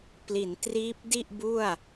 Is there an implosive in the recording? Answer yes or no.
no